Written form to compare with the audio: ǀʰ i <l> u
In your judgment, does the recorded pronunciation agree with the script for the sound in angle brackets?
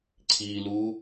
yes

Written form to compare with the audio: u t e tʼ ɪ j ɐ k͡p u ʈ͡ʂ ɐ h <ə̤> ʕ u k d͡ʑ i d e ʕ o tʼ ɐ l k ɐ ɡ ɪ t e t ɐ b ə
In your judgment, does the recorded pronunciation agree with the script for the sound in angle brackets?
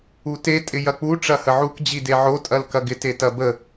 no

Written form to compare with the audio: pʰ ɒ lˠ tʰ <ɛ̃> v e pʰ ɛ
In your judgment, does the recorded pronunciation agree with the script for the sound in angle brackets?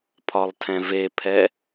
yes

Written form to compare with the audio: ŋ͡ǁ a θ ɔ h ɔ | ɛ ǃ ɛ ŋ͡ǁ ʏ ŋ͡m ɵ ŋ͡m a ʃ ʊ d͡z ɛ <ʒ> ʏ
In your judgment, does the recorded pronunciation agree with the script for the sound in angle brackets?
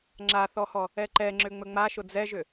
yes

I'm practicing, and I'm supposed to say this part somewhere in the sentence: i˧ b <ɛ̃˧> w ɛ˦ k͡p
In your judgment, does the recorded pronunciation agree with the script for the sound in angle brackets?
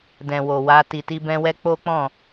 yes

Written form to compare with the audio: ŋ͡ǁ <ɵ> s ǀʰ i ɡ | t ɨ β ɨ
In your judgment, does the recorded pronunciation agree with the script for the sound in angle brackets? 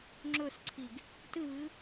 yes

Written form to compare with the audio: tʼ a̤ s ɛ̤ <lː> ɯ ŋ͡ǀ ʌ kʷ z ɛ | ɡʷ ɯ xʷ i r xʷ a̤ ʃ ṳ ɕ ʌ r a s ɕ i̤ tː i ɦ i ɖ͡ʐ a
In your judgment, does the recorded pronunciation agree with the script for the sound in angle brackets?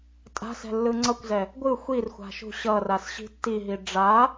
yes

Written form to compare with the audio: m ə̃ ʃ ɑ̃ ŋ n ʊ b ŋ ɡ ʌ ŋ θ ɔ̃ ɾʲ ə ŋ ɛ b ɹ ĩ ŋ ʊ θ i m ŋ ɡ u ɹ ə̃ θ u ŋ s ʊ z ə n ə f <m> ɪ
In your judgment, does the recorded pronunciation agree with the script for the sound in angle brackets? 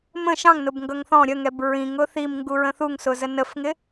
no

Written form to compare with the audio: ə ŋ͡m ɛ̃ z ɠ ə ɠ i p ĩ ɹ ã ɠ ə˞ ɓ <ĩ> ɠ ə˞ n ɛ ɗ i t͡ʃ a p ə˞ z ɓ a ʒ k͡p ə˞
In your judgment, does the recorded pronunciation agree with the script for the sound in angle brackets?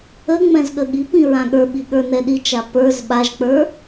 no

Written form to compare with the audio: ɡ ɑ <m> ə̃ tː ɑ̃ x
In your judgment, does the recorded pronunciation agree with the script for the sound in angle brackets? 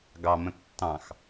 yes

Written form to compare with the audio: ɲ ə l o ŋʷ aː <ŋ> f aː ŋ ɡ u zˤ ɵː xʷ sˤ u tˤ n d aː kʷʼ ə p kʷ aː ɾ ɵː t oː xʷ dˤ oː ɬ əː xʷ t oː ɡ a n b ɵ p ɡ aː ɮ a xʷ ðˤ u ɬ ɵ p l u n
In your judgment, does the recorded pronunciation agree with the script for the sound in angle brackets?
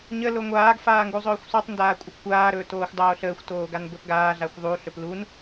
no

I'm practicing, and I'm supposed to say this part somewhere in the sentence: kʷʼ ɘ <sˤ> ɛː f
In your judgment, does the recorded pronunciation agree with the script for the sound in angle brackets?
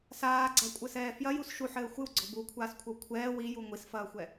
no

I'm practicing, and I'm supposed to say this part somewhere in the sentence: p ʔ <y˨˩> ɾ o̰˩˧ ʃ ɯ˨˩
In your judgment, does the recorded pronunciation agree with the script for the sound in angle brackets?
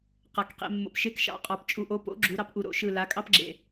no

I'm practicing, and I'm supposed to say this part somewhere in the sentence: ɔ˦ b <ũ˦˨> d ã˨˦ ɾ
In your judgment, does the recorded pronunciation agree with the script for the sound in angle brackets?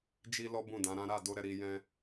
yes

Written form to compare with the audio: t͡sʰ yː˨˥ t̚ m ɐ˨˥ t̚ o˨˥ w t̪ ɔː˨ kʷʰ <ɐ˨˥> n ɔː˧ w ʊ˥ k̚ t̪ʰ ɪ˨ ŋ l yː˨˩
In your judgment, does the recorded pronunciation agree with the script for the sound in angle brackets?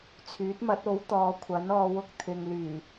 yes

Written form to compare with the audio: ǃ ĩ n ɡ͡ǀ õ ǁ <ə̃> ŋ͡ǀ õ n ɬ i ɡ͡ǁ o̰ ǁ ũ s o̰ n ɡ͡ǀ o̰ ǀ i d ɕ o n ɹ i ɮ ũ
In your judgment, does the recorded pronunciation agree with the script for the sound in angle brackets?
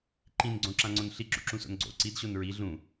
no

